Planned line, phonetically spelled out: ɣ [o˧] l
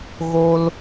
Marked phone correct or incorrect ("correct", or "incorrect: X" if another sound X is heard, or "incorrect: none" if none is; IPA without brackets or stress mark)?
correct